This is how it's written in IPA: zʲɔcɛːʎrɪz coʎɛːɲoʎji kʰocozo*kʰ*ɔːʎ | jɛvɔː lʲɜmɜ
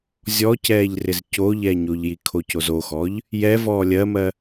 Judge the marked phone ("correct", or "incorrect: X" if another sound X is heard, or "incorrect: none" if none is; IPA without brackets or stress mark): incorrect: x